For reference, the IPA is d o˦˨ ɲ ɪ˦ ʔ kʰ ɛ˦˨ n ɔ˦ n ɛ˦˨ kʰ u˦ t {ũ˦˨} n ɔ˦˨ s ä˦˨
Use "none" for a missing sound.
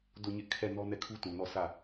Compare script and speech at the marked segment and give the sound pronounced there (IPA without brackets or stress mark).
ũ˨